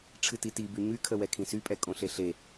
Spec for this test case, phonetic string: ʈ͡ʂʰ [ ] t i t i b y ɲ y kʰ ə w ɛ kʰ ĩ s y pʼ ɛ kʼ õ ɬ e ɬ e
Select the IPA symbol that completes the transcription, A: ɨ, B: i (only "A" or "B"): A